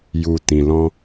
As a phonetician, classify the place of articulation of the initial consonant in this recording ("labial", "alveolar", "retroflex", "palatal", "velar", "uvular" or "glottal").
palatal